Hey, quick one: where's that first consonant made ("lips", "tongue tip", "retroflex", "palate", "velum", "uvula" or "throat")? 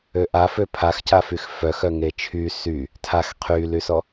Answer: throat